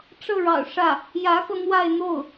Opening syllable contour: falling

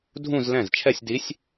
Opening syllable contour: falling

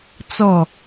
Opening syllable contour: falling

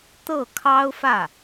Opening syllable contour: falling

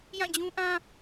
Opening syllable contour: falling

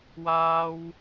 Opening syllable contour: high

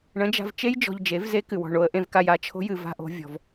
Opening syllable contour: rising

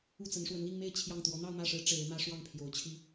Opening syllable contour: falling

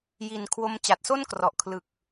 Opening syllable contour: low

